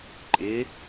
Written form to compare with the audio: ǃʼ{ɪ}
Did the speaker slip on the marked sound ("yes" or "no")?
no